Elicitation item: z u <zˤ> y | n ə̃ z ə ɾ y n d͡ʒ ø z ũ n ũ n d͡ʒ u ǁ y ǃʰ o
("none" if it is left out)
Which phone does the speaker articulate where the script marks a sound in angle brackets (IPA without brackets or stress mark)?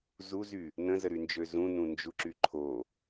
z